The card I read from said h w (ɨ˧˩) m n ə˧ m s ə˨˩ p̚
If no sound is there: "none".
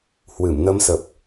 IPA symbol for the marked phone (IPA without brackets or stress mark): ɨ˧˩